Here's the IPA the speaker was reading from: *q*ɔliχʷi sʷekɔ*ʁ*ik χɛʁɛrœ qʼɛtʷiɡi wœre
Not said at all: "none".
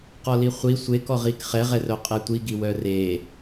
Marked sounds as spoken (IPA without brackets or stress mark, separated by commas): q, ʁ